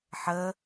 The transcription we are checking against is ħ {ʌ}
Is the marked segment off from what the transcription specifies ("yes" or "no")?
yes